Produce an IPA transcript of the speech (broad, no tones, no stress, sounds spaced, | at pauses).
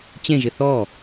t͡ɕ ẽ ʒ ɪ θ ɔ